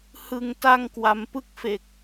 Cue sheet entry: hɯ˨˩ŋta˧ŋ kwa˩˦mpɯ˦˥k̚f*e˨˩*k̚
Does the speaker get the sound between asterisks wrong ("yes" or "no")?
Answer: no